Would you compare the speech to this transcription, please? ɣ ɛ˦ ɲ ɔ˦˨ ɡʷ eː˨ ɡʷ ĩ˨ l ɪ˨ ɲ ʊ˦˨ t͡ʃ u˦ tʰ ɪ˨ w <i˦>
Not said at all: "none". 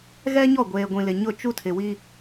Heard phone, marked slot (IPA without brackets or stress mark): i˦